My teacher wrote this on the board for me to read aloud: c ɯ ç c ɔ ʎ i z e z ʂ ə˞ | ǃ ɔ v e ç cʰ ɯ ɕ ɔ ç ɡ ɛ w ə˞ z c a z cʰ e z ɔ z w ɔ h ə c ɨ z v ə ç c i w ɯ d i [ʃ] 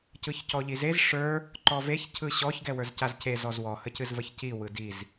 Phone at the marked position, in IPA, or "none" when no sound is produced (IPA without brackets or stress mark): z